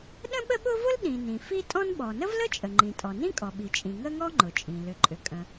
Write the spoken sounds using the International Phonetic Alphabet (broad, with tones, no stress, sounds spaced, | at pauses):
ɗ ə̃˥ ɓ ə˥ ɓ ʊ˥ v ʊ˥ l ɗ ĩ˩ n ĩ˩ f i˥ tʼ ɔ̃˥ n ɓ ɔ˩ n ə˥ v l ə˥ t͡ʃʼ ə˩ ŋ͡ǃ ĩ˩ tʼ ɔ˩ n ĩ˥ kʼ ɔ˩ ɓ i˩ t͡ʃʼ ĩ˩ ŋ ə˥ ŋ ɔ˥ ŋ͡ǃ ʊ˩ t͡ʃʼ ĩ˩ l ʏ˩ ǃʼ ʏ˩ kʼ ə̃˩